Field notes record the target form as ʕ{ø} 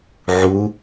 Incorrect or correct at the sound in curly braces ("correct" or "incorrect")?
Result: incorrect